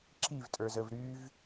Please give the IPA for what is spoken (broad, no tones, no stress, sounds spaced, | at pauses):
ǁ i v tʼ ə˞ z ə v ɾ y v